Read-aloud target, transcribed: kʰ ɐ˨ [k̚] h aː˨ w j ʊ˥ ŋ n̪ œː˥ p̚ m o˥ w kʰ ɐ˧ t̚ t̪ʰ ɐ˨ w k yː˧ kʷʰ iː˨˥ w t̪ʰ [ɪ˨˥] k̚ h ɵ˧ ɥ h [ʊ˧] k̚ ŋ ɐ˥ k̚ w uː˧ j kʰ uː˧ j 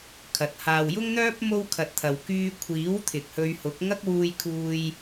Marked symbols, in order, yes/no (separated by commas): no, no, no